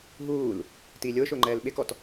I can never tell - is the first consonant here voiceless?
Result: no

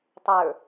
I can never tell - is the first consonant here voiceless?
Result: yes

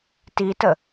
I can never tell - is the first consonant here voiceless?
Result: yes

